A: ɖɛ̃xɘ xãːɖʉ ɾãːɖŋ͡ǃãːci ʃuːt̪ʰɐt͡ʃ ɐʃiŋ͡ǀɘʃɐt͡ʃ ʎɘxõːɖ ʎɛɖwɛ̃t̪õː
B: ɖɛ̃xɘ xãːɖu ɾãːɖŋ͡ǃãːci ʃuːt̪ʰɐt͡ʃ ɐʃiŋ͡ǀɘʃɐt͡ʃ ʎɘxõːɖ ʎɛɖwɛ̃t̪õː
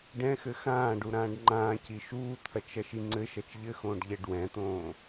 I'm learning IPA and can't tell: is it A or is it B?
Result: B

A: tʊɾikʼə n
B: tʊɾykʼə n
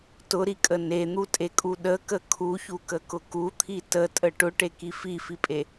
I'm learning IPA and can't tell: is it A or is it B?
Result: A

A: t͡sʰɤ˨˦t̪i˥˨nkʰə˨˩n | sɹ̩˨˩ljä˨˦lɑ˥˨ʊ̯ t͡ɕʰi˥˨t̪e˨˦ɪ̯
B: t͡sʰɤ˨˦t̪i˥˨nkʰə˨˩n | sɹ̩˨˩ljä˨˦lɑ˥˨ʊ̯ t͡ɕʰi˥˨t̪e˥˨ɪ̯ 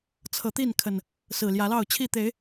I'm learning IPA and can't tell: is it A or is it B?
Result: A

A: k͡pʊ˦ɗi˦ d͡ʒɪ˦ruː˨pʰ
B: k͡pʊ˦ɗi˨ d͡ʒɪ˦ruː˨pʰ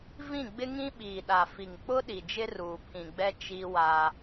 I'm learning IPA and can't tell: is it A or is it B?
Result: B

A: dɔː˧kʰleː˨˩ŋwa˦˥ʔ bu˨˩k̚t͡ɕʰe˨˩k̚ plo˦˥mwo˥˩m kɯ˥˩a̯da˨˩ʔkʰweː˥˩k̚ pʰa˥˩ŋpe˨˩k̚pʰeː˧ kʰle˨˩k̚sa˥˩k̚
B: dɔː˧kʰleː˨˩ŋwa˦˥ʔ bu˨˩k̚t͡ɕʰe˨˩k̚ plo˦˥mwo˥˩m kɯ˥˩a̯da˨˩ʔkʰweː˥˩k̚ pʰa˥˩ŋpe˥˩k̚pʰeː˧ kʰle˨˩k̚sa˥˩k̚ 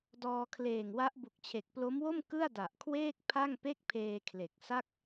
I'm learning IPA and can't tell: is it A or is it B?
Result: B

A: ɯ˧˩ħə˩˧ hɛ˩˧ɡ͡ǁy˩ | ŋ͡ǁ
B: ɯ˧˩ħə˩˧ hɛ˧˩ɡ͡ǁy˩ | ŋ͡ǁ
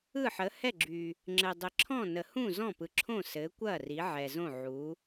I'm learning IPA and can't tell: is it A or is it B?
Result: B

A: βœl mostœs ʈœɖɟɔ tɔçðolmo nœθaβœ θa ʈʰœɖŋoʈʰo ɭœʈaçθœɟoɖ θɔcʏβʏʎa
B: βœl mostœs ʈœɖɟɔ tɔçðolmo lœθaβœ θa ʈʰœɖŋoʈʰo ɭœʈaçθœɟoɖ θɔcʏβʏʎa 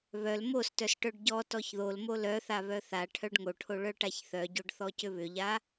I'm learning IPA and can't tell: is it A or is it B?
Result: B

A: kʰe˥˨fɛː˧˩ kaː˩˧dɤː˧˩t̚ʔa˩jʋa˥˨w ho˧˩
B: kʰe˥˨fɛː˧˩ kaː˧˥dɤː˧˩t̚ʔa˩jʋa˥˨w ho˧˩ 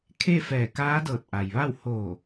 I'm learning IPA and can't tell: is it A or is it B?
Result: B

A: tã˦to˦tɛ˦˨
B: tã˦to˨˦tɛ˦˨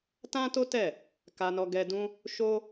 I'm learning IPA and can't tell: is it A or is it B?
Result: A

